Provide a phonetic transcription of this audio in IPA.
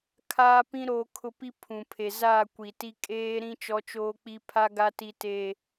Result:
kʰ aː˦ p ĩ˦ ɾ oː˨ kʰ ʊ˨ p i˦ pʰ ũ˨ pʰ e˨ z aː˦˨ kʷ i˨ t i˦ kʼ eː˦ ɾ ĩ˦ t͡ʃ ɔ˦ t͡ʃ oː˦ k͡p i˦ pʰ a˦ ɡ a˦ t i˦ t e˦

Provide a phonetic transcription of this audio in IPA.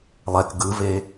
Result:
lˠ ɛ k ɡ ɯ v e

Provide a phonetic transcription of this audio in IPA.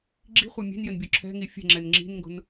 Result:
ɡ͡ǁ i̤ χʷ ɐ mʲ e̤ n j ɘ n bʲ o ǁʰ ɛ̤ ŋ i fʲ ɛ̤ ŋ͡ǁ ɛ n ŋ͡ǁ i̤ n ŋ ɡ o̤ n

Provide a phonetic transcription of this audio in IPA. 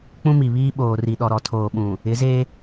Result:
k͡p ũ˦ m i˨ β iː˦ ɓ oː˨ r i˨ ɗ ɔ˨ ɾ ɔ˨ tʰ oː˨ ɓ ũ˨ | ɪ˨˦ z e˦

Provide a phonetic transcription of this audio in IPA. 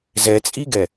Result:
z ɛ t͡sʼ i ɡ ɛ

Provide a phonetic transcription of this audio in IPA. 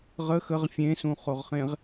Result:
ʁ ə x ə ʁ fʲ ẽ s ũ χ o ʁ χ ẽ ʁ

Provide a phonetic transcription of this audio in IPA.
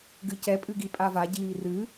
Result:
ɡ ɨ c ɛ pʼ ɨ ɡ i pʼ a v a ɟ iː r ɨ

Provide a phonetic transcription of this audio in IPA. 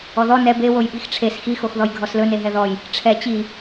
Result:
ɔ ð ɔ n ɛ b e w o j ɓ i x ʈ͡ʂʰ e s x i x o x ð ɔ j ɡʱ ɔ s l ɵ n e ɦ ɛ ð ɔ j | ʈ͡ʂʰ ɛ t͡ɕ i

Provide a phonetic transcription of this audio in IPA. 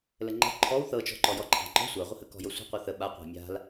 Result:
l ə ŋ͡ǃ ə̤ ǃʰ ɔ w θ ɤ t͡ʃ ɔ̤ ǃ ɔ j ɔ ǃʼ a̤ ŋ͡ǃ ɔ̤ sʷ a ʁʷ ə h ə k ɔ̤ j ɤ sʷ ə̤ qʷ ɤ θ ə ɓ a qʷ a̤ mʲ a̤ l

